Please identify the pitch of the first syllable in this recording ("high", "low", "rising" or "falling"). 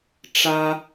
high